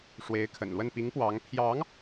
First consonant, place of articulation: retroflex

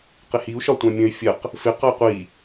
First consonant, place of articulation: uvular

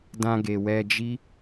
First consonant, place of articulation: alveolar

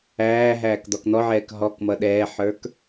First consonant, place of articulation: glottal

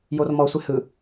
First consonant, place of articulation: palatal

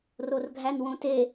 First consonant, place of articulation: alveolar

